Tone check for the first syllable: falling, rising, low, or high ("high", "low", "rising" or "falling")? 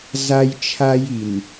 high